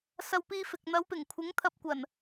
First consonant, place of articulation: alveolar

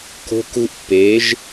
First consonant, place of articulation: velar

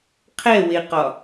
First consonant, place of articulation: uvular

